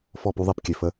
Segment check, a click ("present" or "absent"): absent